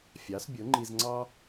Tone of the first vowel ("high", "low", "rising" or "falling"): rising